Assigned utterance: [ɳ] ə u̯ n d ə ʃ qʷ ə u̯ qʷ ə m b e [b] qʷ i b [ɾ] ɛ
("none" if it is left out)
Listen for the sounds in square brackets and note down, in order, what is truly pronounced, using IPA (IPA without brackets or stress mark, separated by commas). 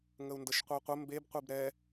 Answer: ŋ, b, ɾ